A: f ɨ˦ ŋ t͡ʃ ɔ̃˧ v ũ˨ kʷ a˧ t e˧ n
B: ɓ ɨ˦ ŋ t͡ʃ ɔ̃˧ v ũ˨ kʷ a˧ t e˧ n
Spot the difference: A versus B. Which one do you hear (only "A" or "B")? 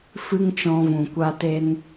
A